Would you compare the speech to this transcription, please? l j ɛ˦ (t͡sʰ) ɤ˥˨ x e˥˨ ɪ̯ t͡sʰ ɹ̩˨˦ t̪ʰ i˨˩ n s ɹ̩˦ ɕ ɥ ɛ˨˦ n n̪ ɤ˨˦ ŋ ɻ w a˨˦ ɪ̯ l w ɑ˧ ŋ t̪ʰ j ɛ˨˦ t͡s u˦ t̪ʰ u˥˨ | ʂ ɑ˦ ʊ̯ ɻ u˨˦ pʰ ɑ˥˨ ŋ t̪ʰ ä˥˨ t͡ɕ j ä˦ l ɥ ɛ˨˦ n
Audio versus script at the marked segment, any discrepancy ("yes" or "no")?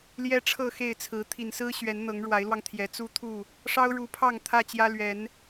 yes